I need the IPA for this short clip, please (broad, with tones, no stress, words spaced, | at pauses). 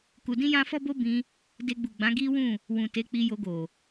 ku˧dĩ˦jã˦ fɔ˦bo˦bĩ˧ | de˧ɡ͡bu˨ɡ͡bã˨˦ ɡi˦wũ˦˨ | wũ˨te˨˦k͡pi˧jo˧ ɡo˨